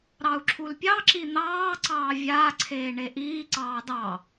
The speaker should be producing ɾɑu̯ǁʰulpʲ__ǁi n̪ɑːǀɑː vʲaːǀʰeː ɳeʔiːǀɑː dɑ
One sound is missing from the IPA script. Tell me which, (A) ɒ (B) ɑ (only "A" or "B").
B